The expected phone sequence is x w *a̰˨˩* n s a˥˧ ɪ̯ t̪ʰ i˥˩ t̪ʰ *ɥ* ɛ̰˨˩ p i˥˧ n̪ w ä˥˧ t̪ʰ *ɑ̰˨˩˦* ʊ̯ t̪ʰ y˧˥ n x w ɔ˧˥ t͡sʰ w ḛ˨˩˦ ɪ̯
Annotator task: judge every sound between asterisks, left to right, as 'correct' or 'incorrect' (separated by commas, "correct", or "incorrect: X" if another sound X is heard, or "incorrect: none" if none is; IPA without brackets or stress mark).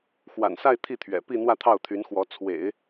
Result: correct, correct, incorrect: ɑ˥˩